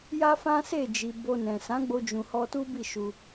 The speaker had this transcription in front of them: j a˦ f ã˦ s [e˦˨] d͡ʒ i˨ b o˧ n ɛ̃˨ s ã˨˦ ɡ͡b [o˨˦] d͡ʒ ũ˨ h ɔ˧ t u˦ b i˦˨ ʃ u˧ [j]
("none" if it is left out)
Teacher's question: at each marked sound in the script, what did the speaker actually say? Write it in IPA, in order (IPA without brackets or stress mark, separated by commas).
e˦˨, o˧, none